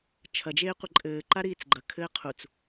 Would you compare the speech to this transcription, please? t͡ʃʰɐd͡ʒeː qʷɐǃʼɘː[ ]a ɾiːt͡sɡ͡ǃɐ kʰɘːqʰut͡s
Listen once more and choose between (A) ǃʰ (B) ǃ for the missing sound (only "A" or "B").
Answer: B